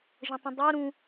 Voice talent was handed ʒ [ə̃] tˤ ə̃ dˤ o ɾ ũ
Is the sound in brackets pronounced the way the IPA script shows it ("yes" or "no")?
yes